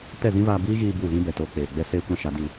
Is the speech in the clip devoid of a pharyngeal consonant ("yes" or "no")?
yes